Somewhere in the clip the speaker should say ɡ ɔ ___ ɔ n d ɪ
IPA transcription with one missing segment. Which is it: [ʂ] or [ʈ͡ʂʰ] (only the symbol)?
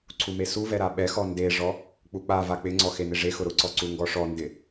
ʂ